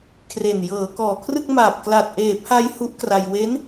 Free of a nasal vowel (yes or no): yes